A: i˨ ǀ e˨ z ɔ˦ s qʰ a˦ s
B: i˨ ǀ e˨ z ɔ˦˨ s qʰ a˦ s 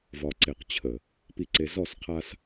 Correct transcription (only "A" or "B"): B